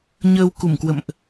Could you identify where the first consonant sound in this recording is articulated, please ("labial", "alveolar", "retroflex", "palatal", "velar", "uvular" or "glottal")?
palatal